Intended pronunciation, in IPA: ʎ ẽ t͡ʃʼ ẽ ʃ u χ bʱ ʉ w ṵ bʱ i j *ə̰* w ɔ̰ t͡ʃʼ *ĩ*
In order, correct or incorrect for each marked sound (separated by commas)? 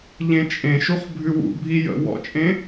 correct, incorrect